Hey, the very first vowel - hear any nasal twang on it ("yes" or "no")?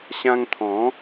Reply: yes